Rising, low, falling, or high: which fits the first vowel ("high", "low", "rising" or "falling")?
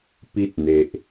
high